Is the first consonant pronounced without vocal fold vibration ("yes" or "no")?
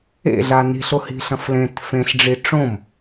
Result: no